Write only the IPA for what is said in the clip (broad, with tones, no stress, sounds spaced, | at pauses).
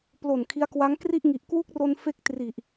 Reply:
p l o˨˩ n kʰ i˦˥ a̯ k w a˦˥ ŋ k r i˥˩ ʔ ŋ i˨˩ ʔ k w u˦˥ k̚ r o˧ n f e˦˥ k̚ t r i˨˩ ʔ